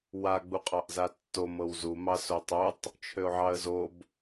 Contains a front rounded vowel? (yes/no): yes